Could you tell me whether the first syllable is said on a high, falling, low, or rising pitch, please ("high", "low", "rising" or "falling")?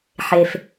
low